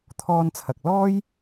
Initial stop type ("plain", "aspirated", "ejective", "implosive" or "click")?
aspirated